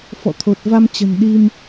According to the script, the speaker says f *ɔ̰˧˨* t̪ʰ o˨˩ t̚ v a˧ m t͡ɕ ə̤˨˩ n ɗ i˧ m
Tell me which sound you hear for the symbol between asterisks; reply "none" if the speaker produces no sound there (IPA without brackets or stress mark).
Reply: ɔ̰˧˨